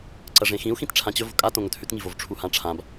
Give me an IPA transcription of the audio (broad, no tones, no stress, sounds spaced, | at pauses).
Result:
ǀ ɐ ʐ ẽ x ĩ u̯ x ĩ t ʈ͡ʂʰ ã t͡ɕ ɵ v o̤ kʼ a t õ ŋ ɵ t h ʉ t ŋ i v o v ʈ͡ʂʰ u h ã ʈ͡ʂʰ ã b